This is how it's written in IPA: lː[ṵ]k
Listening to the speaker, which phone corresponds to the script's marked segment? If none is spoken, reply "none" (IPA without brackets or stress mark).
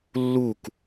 u